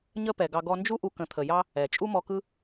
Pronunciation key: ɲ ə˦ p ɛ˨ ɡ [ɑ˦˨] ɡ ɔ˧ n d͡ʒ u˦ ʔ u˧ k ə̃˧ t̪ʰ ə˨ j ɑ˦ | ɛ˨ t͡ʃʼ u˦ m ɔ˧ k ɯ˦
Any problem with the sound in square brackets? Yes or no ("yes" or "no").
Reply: yes